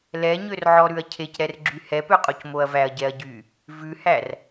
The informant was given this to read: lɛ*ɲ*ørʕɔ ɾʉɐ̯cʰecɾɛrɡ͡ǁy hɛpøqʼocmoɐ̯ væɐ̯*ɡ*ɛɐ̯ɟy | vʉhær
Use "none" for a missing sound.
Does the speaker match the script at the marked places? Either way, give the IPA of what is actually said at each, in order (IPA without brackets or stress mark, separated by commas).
ɲ, ɟ